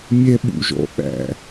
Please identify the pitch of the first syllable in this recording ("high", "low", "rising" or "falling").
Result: high